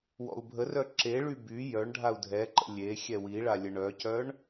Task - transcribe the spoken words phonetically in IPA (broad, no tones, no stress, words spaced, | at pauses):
wɔ̰u̯bʱərœ ǁeɭy by jœɳɖʱau̯ dʱɛǃə̰ lʲe xʲɛwiɭa lʲəɳœcœɳ